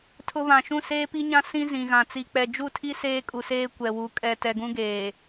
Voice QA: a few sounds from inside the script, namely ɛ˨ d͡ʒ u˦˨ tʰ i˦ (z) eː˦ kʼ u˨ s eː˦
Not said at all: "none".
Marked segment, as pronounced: s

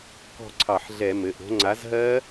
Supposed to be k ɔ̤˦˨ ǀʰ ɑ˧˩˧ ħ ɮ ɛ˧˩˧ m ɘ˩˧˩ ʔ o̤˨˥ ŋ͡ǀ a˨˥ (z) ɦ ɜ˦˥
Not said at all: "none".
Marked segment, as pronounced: z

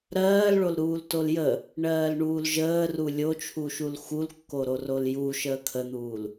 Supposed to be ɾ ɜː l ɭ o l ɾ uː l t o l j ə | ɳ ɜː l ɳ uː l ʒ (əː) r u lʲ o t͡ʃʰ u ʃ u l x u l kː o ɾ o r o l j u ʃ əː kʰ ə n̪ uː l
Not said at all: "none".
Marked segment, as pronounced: əː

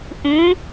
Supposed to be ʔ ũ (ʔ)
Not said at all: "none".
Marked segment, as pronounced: none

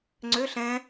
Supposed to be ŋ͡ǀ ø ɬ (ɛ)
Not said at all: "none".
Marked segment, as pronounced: ɛ̃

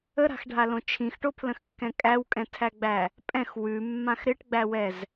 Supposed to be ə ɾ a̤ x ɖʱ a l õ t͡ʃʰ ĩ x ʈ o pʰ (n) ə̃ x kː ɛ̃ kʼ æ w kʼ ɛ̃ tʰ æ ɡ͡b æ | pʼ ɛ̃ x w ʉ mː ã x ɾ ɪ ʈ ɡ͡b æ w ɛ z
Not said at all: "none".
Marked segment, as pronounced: l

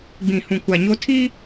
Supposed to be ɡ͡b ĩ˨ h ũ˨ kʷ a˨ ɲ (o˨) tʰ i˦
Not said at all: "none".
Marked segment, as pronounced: o˦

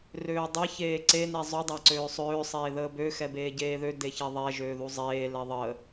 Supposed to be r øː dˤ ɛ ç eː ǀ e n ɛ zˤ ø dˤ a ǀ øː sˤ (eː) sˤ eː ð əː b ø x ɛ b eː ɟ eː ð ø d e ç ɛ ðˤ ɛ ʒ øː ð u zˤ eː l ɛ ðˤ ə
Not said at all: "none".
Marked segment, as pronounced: øː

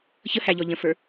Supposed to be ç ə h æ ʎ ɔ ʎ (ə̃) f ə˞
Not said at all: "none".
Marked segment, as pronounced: ə̃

